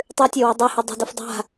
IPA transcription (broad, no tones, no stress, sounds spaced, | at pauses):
tˤ ʉ tʲ ɐ w o dˤ e h ɨ dˤ e̤ d u f dˤ a̤